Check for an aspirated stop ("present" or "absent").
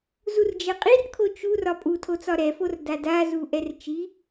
present